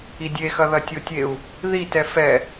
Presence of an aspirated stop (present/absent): absent